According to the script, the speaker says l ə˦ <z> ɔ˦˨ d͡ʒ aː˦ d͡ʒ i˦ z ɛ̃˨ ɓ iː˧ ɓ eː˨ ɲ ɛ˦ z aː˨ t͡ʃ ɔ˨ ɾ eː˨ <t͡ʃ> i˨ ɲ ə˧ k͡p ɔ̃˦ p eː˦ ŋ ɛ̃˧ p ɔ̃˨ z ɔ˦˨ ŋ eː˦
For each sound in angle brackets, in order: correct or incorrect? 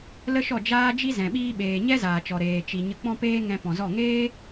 incorrect, correct

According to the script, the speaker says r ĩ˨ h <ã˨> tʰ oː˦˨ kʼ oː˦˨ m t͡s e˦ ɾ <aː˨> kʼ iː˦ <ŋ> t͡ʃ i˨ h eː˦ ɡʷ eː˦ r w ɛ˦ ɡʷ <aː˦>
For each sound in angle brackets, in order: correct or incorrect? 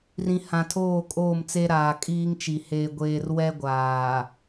correct, correct, correct, incorrect

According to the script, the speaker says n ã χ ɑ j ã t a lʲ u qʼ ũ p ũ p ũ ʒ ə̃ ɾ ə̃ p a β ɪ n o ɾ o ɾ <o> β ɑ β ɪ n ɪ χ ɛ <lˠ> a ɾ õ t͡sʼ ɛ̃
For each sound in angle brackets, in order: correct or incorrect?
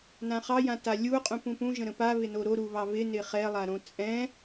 incorrect, correct

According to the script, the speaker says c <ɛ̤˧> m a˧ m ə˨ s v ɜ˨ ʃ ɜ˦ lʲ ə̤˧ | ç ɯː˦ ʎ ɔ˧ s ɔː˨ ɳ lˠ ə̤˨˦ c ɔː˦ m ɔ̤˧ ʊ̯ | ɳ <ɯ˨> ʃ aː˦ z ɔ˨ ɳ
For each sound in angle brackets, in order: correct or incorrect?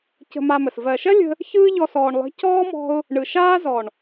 incorrect, correct

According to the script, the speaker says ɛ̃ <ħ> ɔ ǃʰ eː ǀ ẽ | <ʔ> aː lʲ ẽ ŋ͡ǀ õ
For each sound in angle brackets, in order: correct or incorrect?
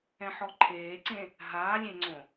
correct, incorrect

